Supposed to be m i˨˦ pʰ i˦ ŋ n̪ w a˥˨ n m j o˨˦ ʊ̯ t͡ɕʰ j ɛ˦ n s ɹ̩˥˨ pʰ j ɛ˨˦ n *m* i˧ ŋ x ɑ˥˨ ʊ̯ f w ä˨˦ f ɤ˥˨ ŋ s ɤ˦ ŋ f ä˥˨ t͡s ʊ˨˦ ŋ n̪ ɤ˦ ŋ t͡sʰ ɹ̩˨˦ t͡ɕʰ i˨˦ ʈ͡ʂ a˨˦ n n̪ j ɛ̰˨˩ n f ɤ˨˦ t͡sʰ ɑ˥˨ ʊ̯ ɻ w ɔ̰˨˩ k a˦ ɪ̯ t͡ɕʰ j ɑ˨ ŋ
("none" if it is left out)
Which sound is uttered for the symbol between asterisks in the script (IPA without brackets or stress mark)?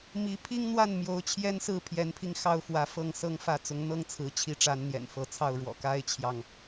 pʰ